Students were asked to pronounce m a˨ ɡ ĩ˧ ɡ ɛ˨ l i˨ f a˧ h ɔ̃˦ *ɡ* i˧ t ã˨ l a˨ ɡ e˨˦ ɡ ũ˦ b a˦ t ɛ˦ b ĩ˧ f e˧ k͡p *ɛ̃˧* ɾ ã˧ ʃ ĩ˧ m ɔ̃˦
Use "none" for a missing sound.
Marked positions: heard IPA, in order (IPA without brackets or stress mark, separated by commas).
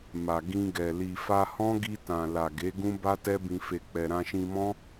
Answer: ɡ, ɛ˧